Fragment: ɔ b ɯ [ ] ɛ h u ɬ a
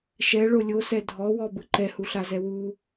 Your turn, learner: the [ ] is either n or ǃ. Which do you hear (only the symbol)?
ǃ